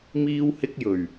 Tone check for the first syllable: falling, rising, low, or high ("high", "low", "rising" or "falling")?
high